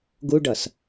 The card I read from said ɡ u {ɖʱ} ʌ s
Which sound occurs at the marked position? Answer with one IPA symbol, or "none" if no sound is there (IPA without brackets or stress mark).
ɖ